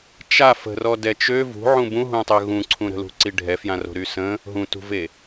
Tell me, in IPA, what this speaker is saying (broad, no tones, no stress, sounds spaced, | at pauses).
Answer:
t͡ʃ a f ə̤ r ɔ d ɛ t͡ʃ ø v ṳ ʕ ũ b ũ ɦ ũ tˤ ø ɣ ũ ǀʰ ũ ɾ ə̤ l ṳ ǀ i ɖʱ ɛ f j ã r o̤ ɾ y s ə̃ | ɦ ũ t ṳ v e